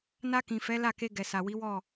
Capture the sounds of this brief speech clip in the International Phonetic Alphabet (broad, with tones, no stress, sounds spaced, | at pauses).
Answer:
n a˧ k ĩ˨ f ɛ˨˦ l a˦˨ k e˧ ɡ ɛ˨ s a˨ w i˨˦ w ɔ˦˨